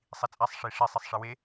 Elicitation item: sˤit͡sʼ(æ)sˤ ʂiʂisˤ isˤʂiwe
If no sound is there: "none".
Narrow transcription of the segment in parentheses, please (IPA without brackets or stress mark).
æ